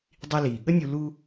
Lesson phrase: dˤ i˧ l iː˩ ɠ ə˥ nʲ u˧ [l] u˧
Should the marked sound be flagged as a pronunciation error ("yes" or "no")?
no